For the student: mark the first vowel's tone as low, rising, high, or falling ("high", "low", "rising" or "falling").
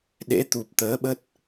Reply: rising